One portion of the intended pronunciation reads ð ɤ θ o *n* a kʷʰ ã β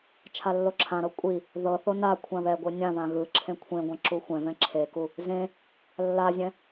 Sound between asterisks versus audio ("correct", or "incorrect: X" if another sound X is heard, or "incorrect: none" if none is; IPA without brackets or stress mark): correct